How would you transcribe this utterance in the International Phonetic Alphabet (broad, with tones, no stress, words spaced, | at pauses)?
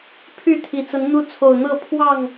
pʰy˥˨t̪ʰi˨˩t͡sə˨˦n n̪u˦ t͡sʰo˨˩ʊ̯n̪ɤ˥˨ pʰwɑ˥˨ŋ